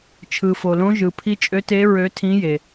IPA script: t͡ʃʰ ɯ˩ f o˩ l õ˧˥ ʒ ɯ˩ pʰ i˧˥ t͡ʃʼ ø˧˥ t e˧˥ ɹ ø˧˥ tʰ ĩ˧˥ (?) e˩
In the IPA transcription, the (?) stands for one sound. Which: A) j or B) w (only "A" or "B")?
A